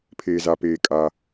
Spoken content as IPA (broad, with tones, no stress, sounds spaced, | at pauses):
pʰ eː˩ z a˩ p eː˩ kʼ aː˩